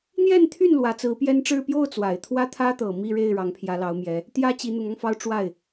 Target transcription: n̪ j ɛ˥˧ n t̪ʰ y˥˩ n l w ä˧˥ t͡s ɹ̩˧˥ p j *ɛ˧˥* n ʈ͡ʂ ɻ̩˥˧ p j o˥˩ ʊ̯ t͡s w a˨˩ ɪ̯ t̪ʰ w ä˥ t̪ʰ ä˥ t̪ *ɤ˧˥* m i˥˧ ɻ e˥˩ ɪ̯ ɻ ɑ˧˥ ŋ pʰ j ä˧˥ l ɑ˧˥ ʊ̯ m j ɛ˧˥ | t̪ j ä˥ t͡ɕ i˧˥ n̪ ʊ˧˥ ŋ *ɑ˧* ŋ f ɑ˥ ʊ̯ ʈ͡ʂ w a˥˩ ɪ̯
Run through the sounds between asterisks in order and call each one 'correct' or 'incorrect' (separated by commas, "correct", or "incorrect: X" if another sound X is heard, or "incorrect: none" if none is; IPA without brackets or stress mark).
incorrect: ɛ˥, incorrect: ɤ˨˩, correct